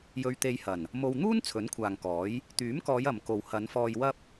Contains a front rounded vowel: yes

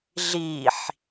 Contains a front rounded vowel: no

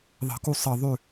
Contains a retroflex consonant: no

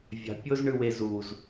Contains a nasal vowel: no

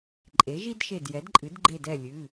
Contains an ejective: yes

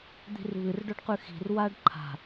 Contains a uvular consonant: yes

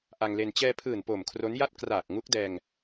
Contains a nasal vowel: no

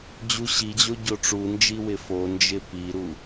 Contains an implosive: no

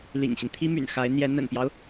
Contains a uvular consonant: no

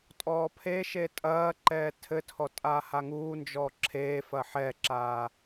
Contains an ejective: yes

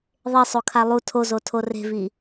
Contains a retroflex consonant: no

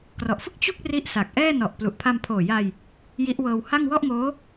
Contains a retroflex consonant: no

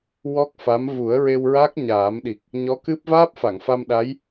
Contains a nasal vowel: no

